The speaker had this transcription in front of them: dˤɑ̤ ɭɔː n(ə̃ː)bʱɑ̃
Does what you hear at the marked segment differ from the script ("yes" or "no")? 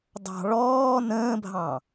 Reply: no